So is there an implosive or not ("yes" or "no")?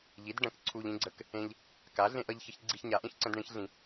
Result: no